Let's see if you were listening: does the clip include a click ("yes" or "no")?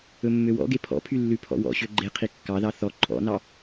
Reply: yes